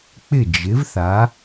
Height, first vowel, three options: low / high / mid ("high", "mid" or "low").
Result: high